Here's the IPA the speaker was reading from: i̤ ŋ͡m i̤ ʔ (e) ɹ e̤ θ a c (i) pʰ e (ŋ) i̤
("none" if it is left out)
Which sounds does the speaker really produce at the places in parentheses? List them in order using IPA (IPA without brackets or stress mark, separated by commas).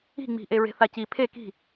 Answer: e, i, k